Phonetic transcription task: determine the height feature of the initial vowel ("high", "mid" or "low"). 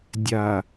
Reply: low